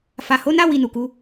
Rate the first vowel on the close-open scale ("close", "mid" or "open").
open